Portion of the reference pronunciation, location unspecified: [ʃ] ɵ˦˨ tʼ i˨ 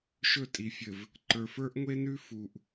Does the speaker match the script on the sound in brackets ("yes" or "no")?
yes